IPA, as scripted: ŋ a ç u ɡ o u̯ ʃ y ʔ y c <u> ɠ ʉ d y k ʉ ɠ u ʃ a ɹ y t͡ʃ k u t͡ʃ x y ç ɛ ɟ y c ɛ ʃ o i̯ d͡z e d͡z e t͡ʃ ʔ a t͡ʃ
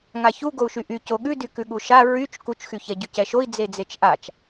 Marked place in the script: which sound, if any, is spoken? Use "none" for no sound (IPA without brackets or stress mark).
o